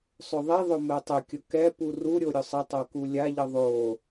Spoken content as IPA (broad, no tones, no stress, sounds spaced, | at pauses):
sˤ ɵ ðˤ i ðˤ ʊ m ɛ tˤ ʊ kʲ ʊ k ɛ p u r u ɾʲ o ɾʲ ʊ sˤ ə tˤ o k u lʲ a ʎ ə ðˤ o